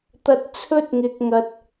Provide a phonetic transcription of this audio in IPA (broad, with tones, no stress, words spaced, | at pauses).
t̪ɐ˧t̚t͡sʰɵ˥t̚ŋɪ˧k̚ŋɐ˧t̚